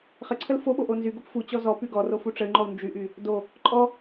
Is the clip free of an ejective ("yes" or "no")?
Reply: no